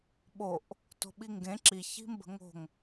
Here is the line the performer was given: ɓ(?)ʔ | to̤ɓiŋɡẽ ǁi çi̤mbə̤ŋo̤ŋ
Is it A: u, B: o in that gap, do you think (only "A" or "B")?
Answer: B